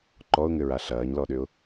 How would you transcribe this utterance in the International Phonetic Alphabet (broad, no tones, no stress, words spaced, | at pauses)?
ǃɔʊ̯ŋʏɹa ɬɐːɲlɔɗʏʊ̯